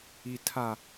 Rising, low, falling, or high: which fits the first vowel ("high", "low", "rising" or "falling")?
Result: low